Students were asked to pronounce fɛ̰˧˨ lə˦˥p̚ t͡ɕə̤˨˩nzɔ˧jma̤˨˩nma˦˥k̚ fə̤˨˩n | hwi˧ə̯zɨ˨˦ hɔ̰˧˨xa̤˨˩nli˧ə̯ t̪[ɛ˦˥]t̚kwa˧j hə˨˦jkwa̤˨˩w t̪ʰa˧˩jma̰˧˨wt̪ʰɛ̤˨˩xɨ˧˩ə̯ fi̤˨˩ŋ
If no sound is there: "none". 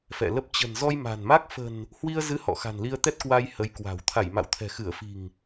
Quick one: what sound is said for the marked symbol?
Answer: ɛ˦˥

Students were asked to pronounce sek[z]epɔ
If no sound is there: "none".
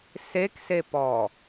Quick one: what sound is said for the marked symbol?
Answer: s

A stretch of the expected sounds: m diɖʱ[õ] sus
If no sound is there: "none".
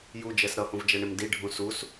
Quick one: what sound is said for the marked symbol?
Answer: ũ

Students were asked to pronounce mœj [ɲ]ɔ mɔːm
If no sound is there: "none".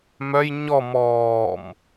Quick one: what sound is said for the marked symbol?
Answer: ɲ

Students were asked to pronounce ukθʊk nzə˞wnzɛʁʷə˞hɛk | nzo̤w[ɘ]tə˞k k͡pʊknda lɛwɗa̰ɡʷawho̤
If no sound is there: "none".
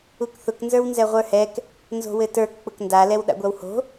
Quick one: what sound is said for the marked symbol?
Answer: ɘ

